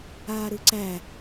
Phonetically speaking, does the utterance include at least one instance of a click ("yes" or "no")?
yes